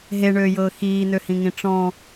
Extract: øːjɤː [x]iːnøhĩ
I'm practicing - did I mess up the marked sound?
no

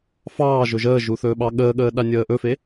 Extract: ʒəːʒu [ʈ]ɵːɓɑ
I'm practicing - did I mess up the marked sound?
yes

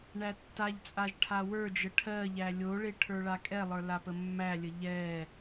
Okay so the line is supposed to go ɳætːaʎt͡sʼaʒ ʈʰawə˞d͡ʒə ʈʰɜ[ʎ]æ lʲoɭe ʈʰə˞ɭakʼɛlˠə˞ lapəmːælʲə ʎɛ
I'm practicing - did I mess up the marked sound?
no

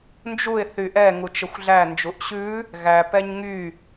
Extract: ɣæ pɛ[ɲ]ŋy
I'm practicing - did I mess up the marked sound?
no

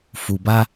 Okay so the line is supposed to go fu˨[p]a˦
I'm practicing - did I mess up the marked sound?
yes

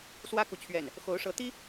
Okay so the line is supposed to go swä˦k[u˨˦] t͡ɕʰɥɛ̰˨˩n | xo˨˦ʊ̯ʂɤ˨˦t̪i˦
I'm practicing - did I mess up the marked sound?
yes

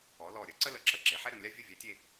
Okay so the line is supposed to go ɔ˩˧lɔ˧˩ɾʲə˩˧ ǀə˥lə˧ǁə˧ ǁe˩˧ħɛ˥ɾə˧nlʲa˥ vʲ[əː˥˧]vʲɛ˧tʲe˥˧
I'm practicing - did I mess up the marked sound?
yes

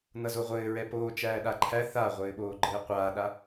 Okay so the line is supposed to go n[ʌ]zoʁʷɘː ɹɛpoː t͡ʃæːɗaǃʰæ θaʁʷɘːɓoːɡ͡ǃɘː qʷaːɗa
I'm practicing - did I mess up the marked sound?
no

